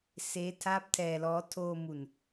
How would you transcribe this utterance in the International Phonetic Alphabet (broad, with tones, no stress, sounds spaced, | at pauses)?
s eː˦˥ tʰ aː˦˥ p̚ tʰ ɛː˧ l ɔː˦˥ tʰ oː˧ m u˨˩ n